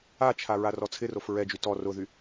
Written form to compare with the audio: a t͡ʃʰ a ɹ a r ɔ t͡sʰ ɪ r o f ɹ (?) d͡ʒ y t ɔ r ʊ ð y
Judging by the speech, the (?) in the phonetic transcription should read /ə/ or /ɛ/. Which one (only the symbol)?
ɛ